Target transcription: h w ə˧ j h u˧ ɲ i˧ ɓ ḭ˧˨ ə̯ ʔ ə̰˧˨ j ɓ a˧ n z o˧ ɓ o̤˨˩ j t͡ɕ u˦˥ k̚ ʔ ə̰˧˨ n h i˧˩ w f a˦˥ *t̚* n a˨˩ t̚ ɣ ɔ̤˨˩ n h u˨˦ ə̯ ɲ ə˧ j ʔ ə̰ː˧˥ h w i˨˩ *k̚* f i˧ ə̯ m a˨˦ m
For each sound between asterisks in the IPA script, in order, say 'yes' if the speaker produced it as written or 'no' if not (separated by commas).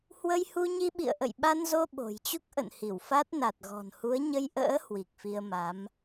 yes, yes